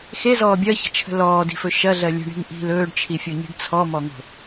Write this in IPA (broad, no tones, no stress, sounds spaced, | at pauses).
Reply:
x e z ɔː bʲ ɜ ç ə̤ t͡ʃʰ ə̤ l ɔː d i̤ f ɵ ʃ ɐ ɮ ɜ lʲ ə̤ ɳ i̤ ŋ ʔ i̤ l ɵː ɖ t͡ʃʰ i fʲ o ɲ i̤ ɖ t͡sʰ ɔ m ɔ ŋ o̤